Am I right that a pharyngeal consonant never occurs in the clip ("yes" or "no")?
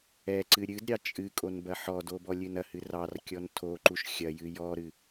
no